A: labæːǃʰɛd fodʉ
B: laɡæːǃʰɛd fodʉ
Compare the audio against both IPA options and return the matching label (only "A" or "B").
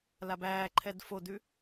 A